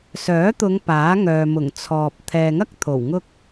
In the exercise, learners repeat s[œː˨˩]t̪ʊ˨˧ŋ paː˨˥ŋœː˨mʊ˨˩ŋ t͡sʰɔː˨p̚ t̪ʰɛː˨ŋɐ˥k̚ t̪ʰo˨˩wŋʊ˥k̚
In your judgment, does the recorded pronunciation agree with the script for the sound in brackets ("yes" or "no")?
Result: no